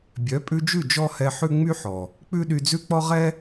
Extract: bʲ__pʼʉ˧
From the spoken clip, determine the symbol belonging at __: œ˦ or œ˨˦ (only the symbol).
œ˨˦